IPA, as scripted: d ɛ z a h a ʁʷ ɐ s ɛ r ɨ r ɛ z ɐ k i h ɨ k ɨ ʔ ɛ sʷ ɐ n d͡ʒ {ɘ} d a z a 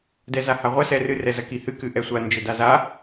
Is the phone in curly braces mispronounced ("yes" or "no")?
no